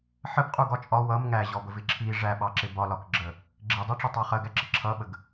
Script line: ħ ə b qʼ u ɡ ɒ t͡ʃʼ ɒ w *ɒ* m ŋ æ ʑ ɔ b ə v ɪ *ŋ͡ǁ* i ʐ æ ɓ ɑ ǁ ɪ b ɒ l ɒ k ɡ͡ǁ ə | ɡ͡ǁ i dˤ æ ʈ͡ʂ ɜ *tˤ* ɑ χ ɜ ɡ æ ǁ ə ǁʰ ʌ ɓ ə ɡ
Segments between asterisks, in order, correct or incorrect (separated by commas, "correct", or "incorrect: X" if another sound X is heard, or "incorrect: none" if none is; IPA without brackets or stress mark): incorrect: ʌ, incorrect: ǁʰ, correct